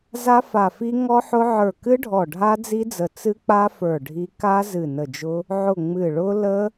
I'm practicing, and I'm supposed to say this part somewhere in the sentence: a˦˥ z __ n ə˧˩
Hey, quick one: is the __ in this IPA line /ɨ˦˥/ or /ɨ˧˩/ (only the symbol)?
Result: ɨ˧˩